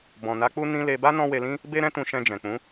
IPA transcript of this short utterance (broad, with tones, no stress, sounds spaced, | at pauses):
b ɔ̃˨ n a˨˦ k͡p u˦ n ĩ˧ l e˧ b a˦ n ɔ̃˦ w e˧ l ĩ˦ | b e˦ ɾ ɛ̃˦ t ũ˧ ʃ ɛ̃˧ d͡ʒ ɛ̃˨ k͡p ũ˨˦